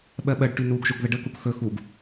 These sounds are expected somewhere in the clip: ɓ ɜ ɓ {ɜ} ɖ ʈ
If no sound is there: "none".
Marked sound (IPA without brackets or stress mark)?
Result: ɜ